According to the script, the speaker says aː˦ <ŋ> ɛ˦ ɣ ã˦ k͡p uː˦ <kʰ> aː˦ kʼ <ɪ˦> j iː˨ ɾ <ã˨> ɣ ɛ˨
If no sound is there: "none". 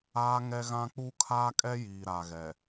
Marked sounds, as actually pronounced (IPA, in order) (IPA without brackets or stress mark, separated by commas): ŋ, kʰ, ɛ˦, a˨